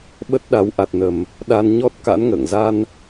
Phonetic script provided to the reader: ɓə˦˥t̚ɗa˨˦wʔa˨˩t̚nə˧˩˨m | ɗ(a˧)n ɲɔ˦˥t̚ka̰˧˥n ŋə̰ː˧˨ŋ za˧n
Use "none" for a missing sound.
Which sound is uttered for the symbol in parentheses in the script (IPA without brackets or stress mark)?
a˧